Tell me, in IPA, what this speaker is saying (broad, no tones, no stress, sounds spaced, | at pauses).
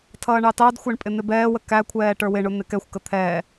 tʰ ʌː ɳ ɑ t ɑ d xʷ æ ɳ pʼ ɪ n̪ ɪ b ɛː w ə k æ kʷʰ ɛː ʈ ə˞ w ɪ ɳ ʊ n̪ ɪ k ɛ xʷ k ə t̪ʰ ɛː